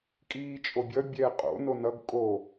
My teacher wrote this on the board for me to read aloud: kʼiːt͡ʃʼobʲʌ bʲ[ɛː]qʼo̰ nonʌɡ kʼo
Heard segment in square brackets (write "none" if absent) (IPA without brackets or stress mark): ɛː